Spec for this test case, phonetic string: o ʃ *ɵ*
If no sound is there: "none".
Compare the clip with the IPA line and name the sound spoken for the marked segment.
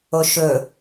ɵ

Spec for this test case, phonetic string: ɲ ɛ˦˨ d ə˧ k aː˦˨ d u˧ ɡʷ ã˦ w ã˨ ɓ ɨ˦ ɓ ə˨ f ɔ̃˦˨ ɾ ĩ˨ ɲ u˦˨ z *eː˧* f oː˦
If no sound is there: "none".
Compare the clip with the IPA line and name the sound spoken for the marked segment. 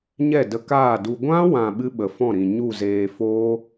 eː˧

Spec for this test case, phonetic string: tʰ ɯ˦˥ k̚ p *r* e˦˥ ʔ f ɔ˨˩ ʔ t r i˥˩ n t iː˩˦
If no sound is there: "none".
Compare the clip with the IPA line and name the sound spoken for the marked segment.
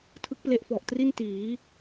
l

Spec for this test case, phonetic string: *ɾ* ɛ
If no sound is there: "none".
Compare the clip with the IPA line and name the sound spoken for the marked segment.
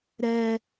ɾ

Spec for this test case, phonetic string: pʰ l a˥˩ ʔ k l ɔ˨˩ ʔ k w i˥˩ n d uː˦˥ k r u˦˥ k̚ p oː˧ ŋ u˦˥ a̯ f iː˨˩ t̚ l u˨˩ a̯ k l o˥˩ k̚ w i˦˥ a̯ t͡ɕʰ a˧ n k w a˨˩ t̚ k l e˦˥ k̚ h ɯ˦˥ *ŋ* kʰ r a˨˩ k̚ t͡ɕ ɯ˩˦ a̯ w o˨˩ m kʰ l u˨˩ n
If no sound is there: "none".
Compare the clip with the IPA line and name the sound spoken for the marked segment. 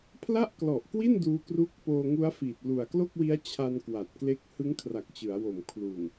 ŋ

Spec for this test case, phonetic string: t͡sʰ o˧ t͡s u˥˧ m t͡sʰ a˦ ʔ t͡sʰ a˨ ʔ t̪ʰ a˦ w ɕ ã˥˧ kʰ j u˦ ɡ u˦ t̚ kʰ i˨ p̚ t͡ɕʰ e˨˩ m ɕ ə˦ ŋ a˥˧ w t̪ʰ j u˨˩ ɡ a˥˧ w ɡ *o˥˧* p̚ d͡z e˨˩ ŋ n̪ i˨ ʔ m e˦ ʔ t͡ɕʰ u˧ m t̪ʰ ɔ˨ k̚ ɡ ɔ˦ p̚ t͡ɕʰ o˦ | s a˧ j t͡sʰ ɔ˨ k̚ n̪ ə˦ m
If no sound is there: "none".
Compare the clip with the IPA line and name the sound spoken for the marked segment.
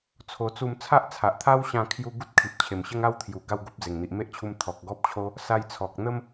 o˦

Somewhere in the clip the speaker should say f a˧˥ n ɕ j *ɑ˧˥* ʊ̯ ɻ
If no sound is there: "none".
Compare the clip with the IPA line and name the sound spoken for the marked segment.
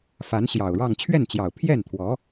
ɑ˨˩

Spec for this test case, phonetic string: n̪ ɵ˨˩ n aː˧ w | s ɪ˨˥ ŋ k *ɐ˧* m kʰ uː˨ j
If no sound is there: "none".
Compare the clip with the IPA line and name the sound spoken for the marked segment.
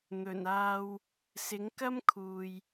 ɐ˥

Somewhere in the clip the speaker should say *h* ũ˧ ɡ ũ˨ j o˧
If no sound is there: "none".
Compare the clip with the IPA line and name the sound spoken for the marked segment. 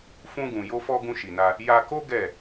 f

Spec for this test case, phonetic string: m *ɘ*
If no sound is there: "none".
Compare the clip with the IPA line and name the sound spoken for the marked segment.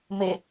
e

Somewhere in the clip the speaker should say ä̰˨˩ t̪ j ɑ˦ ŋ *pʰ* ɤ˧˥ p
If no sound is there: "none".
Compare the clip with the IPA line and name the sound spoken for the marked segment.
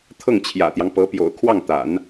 p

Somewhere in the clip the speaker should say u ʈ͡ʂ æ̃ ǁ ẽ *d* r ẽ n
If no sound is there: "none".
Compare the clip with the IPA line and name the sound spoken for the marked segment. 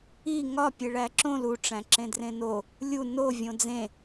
d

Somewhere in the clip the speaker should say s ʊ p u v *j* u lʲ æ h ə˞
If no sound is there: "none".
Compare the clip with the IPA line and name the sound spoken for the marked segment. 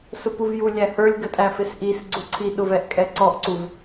j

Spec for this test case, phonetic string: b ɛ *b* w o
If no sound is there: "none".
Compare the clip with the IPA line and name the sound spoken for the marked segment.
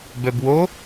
b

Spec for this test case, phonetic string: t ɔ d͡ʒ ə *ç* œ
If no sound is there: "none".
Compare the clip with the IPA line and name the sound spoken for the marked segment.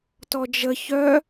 ç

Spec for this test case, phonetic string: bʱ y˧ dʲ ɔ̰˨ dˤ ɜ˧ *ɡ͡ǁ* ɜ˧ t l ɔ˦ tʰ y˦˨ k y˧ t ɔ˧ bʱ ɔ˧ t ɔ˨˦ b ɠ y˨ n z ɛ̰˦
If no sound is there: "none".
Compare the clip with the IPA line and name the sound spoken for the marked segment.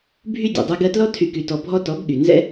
ɡ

